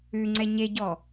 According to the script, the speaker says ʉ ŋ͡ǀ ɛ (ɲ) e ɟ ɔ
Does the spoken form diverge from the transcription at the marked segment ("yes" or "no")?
no